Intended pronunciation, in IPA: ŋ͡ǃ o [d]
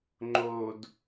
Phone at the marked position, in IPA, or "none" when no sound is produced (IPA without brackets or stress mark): d